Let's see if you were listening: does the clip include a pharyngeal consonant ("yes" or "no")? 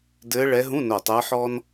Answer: yes